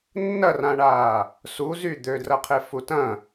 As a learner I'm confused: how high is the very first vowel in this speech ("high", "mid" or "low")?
low